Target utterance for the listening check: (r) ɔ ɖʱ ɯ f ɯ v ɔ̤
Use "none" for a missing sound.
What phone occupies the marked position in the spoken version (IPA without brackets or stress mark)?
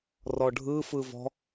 r